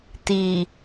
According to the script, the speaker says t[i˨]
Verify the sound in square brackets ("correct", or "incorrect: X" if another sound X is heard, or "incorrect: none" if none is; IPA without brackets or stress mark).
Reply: correct